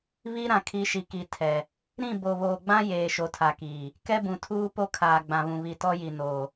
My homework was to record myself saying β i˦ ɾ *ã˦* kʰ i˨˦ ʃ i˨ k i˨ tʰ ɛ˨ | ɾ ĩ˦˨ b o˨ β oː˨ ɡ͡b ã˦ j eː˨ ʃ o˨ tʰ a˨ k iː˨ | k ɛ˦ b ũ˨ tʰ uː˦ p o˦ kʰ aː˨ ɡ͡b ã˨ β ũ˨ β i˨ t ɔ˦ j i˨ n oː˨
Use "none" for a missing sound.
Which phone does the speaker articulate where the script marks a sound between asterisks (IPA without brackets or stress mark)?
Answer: ã˨